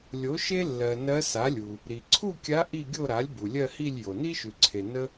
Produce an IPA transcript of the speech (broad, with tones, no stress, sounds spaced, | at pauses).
lʲ o˩˥ ʃ e˥ lː ɜ˩ n ɜ˧˥ s a˩˥ lʲ u˩ | ɾ i˩ ǀʰ u˥˧ kʲ a˧˥ ʔ i˥˧ ɡʲ o˥˧ ɾ a˩˥ lʲ b u˩ lʲ ɜ˥˧ h i˥˧ lʲ j o˩ n i˥ ʃ ʉ˩ ǀʰ e˩ n ə˥